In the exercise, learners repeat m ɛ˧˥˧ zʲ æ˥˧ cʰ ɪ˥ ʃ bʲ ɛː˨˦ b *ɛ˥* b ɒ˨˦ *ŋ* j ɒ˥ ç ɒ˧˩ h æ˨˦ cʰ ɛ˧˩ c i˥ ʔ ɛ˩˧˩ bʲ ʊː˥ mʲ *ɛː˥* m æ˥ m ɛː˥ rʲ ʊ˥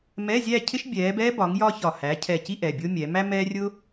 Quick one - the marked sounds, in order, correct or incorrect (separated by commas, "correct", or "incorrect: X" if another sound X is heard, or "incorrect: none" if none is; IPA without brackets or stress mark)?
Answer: correct, correct, incorrect: ɛː˨˦